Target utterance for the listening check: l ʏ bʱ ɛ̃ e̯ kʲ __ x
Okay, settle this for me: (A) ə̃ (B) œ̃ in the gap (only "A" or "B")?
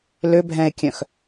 B